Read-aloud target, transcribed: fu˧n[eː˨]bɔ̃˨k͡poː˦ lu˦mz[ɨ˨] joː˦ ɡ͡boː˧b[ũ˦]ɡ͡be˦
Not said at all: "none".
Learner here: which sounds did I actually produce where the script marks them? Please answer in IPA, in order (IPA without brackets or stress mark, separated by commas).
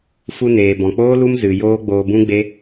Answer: eː˨, ɨ˨, ũ˦